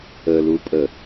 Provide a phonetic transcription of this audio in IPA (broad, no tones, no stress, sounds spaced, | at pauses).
ə l u pʼ ə